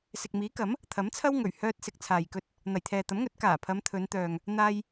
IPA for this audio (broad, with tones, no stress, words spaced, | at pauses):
sɪ˨k̚miː˨˥kɐ˨˥m | t̪ʰɐ˨˥mt͡sʰɐ˥wŋɵ˨˩ɥ hœː˥t̚sɪ˧k̚ t͡sʰaː˨jkɵ˧t̚ | n̪ɐ˨˩jt̪ʰɛː˨t̪ɐ˨˥mŋɵ˨˥t̚ kaː˨˩pʰɐ˨˧m t̪ʰɵ˨˧nt̪œː˨ŋ | n̪aː˧j